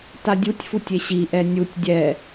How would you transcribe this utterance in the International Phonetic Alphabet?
tadʲutʲfutʲ eɕiʔɛ nʲutʲ dʲɛ

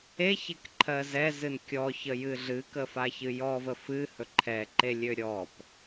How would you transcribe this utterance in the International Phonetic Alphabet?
eçekǃʰɜ zɛzɨn kʲɔçəjɨ ɮɨkəfaçɨ jɔvə fɨhɵ ǃʰɛǃelʲø ɾʲɔp

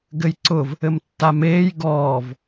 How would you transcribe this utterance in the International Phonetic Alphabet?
ɡɘjǀʊv | ɘmtːameːj ɡɔːv

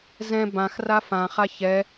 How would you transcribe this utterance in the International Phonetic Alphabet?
zɛ̃ bãxra fãχa çɛ

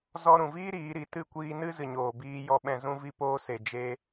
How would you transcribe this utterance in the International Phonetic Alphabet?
zɔ˧ɾũ˨viː˦ ɾiː˨˦ɾi˨ tɨ˦˨kʷiː˧ nɨ˦zɨ˨ɲoː˨biː˧ jɔ˧ɓɛ̃˧ zũ˧vi˧poː˧ se˨d͡ʒe˧

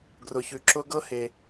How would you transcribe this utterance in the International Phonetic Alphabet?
ɡrʊ˨çʉ˨ ǁʊ˦ ɡɤ˦he˨

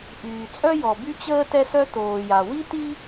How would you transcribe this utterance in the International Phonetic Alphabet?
ʔyː˩t͡sʼœ˥jɔ˩ by˥t͡ɕəː˥ tɛ˥sœ˥ toː˩ja˩wi˥ti˥

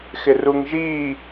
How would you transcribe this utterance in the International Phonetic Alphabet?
xɪruŋʒiː

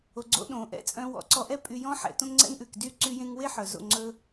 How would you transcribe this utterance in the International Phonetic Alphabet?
o˨ɡ͡ǀo̰˧ ɗõ˨ʔɛ̰˧t͡sʼœ̃˧ wɔ̰˨˦ǀɔ˧ʔɛ˦ pʼy˧jɔ̃˦ ħɛ̰˨˦tõ˦ŋŋ͡ǀɛ̰˦ŋʔʉ˨k dy˦˨ ǀy˧jẽ˧ŋwe˦ ħœ˨zo̰˦˨ ŋ͡ǀɵ˧

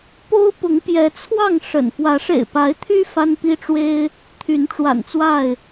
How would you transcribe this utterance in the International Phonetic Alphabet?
po˦ʊ̯pʊ˨˦ŋpjɛ˨˦t͡sʰwɑ˥˨ŋ ʂə̰˨˩n fwä˨˦ʂḛ˨˩ɪ̯pa˨˦ɪ̯t̪ʰy˦ fa˦npi˦ʈ͡ʂwe˦ɪ̯ | t̪ʰy˨˦nʈ͡ʂwa̰˨˩nt͡swa˥˨ɪ̯

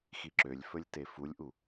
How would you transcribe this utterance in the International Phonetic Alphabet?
xiǁølʲfɵlʲ tefulʲʔu

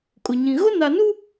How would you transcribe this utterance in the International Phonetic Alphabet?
kʼʊ˨ɲĩ˨ ɣʊ˦na˨nu˦

